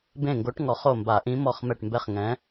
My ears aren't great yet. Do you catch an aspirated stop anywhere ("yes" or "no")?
no